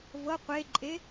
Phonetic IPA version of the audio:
v ɤ qʷ e ǃʼ e

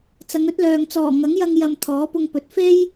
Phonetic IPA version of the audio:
t͡s ɐ˨˧ ŋ ɵ˥ t̚ l œː˨ ŋ t͡s ɔː˨˩ ŋ ɐ˨˥ ŋ j ɐ˧ ŋ j ɐ˨ m t̪ʰ ɔː˨˥ p ʊ˧ ŋ p ɵ˨˥ t̚ f e˥ j

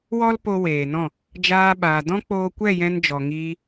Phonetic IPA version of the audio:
w ɔ˦ l p o˧ w eː˨ n ɔ̃˦˨ | d͡ʒ aː˧ ɓ aː˨ d ɔ̃˦ k͡p oː˧ kʷ ɛ˦˨ j ɛ̃˧ n d͡ʒ ɔ˨ ŋ iː˧

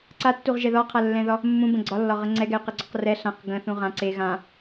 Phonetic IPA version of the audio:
ǀ a tː u ʁ ʒ ɛ ð ɒ qʰ a lː ɛ̃ ð ɒ | mː ũ b ə̃ ɡ͡ǀ ɒ lː ɒ ʁ ə ŋ͡ǀ ɛ ɡ ɛ y̯ q ɛ ɡ͡ǀ ɒ q r ɛ ɬ ã q ɡ ə̃ θ ũ ʁ ã ǀ e ɣ ã

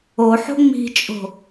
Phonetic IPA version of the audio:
o ħ o̤ ŋ͡m i̤ t͡ʃʼ o̤

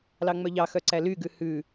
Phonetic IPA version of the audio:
l ɑ ŋ͡m œ ʎ ɑ x œ ǀ æ l y ɡ ʉ h ʉ

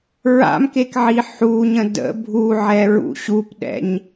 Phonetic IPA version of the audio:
ɹ a̰ m k e k ʕ i ħ u ɲ ə̃ d ə̰ bʱ u ʕ ɛ ɹ ṵ ɕ u p ɗ ɛ̰ ɲ

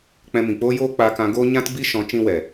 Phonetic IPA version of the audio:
k͡p ɛ̃˧ m ĩ˨ k͡p oː˦ j oː˦ k͡p a˧ k ã˧ ɡ oː˦ ɲ ã˦ t b i˦ ʃ ɔ̃˨˦ t͡ʃ ĩ˧ w ɛ˨

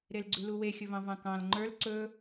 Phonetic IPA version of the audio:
ɾ e l ɡ͡ǀ ʉ l u w e xʲ ɵ v ɑ̃ v ɑ̃ k ɑ̃ l ŋ͡ǃ ə˞ l ǀ ɵ

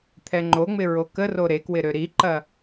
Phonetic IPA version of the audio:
t̪ʰ ɛ ŋ͡ǃ o ŋ͡m ɪ ɹ o k ə r o ɾ e k w ɪ ɾ ø ɾ i ǃ ɐ

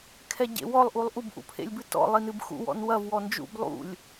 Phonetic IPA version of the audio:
kʰ ɛ ɟ ḛ w ɔ lˠ ʔ u lˠ ʔ u b ʔ ṵ pʰ ḛ lʲ b ɨ t ɔ̰ lˠ i n ɨ b x ṵ w ɔ̰ n w ɐ v w ɔ n d͡ʒ ṵ b lˠ ṵ lʲ

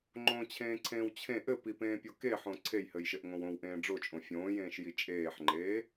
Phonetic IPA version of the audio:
ŋ͡ǃ õ t͡ɕʰ ẽː ǀʰ ẽː w t͡ɕʰ ẽ ʔ ɘ p i p ẽː pʲ o k e ħ õ ǀʰ e j h ɘ j ʃ ɘ ʔ ŋ õ w õ w ʔ ẽː ɖ͡ʐ o t͡ʃʼ õ fʲ õː j ẽː ʃ j i t͡ʃʼ eː ħ ŋ͡ǃ eː

